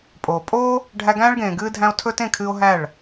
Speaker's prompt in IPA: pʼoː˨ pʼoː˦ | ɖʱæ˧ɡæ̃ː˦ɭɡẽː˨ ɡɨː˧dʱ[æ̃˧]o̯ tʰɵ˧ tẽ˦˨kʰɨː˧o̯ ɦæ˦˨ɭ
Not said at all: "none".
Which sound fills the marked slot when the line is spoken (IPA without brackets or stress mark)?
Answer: æ̃˧